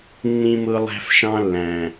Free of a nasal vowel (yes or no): no